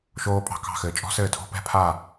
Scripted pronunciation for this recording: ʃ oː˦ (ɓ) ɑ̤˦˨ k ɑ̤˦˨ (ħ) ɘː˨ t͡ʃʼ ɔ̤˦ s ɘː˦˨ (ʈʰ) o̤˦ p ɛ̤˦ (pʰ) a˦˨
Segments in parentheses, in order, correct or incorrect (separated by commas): incorrect, incorrect, incorrect, correct